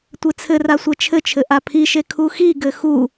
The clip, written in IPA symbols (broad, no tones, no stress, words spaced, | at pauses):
tʷet͡sʰɘra sʷɛt͡ʃʰɘt͡ʃʰɘ ʔapʰiʃe kʰuxiɡɘ xu